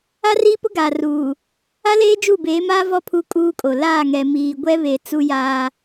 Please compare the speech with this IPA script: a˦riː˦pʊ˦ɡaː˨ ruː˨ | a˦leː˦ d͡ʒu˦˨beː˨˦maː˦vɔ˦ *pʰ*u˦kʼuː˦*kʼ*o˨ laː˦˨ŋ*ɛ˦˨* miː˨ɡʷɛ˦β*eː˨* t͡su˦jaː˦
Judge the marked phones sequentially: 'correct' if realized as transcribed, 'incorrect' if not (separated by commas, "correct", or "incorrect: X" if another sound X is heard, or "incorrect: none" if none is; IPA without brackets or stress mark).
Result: correct, correct, incorrect: ɛ˨, incorrect: e˨